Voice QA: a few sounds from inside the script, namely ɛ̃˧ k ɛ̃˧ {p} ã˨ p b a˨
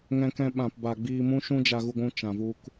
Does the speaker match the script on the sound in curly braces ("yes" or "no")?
no